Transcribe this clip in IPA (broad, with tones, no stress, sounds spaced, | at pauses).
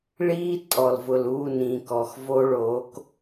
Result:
ɭ iː˦ tʼ ɔ˨ l v ʊ˨ l uː˦˨ n ĩ˨ k ɔ˨ x v o˦ ɭ oː˨˦ k